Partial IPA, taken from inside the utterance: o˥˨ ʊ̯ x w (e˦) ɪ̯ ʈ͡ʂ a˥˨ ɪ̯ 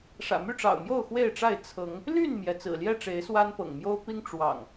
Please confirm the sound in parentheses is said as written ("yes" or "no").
no